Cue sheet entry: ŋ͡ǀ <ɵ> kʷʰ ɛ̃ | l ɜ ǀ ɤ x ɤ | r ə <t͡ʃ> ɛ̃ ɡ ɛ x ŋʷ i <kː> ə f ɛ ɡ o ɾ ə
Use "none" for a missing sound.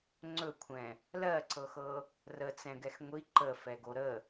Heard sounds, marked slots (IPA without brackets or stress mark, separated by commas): ɵ, t͡s, ǃ